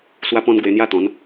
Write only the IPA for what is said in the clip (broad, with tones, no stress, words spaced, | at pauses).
swa˧pɔ̃˧n ɡwe˧n̪ja˦t̪ɔ̃˨˦n